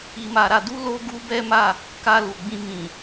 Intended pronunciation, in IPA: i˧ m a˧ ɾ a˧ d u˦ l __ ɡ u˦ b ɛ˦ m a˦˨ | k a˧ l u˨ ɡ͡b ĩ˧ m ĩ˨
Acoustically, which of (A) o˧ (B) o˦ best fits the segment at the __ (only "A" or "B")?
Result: B